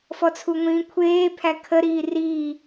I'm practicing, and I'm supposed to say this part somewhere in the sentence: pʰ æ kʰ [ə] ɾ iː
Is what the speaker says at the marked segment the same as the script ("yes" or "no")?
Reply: yes